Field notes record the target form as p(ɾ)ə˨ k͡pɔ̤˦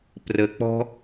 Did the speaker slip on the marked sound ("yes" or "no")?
yes